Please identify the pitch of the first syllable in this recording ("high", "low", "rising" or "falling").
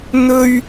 high